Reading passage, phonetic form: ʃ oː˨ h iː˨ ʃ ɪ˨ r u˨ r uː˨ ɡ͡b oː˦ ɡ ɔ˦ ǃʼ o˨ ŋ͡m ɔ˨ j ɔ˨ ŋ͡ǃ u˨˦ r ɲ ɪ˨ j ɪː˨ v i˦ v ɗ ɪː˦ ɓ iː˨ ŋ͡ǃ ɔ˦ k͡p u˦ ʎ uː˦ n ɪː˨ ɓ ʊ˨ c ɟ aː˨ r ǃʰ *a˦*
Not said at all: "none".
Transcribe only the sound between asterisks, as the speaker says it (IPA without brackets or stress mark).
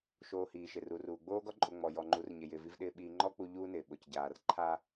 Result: a˦